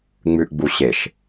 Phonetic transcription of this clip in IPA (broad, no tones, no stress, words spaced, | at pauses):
ŋ͡mʉʔɡ͡buɕeʃ